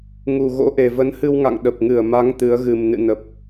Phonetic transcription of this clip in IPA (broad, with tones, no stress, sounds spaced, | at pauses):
ŋ u˨˩ ɣ o̰˧˥ ʔ e˨˩ v ə˨˦ n h ɨ˧ w ŋ a̰˧˨ ŋ ɗ ə˨˩ p̚ ŋ ɨ˧˩ ə̯ m a˨˦ ŋ t̪ ɨ˨˦ ə̯ ɣ ɨ˨˩ m n ɨ̰˧˨ n ə˨˩ p̚